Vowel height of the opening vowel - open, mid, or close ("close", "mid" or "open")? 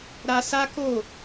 open